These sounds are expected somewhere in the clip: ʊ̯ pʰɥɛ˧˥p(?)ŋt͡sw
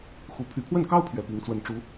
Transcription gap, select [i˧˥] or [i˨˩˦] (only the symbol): i˧˥